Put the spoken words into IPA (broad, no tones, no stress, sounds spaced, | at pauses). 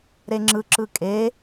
ɾ e ŋ͡ǁ ɯ ǁ ɯ kʼ e